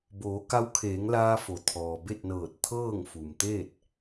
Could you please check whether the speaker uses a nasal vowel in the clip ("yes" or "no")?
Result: no